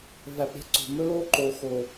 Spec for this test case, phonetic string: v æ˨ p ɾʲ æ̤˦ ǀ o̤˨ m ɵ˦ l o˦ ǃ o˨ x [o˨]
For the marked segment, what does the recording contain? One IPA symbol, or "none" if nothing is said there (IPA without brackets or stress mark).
o˨